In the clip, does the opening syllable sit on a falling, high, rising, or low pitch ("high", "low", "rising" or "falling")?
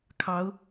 rising